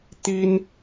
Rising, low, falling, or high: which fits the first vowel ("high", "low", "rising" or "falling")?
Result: high